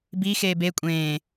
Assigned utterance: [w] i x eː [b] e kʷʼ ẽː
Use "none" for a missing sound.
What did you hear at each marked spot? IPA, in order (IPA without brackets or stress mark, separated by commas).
b, b